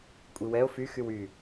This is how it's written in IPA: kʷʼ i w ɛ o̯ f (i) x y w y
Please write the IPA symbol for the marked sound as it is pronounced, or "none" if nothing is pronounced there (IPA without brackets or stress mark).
y